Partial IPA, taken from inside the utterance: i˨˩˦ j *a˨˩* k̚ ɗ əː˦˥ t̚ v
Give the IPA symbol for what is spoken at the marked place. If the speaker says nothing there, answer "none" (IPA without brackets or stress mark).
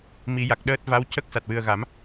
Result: a˨˩